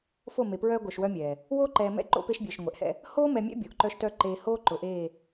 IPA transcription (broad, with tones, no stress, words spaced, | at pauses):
fo˦˨me˨ pɹœː˦ɡʷœ˨ʃwœ˦mʲɛː˨ | woː˦ǃɛː˨mɛ̰˦ ǃo̰˦pe˦ʃbʲœː˨ʃ ŋʷɛ˨ʔhɛ̰˦ | hoː˦mɛ˨mʲɛ̰˦ bʲo˨ʔǃœ˦ʃtœ˦ ǃeː˨hoː˦ ǃʊ˨ʔeː˦˨